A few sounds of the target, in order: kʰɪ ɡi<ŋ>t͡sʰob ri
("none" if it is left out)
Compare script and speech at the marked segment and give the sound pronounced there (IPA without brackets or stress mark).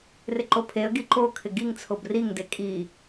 ŋ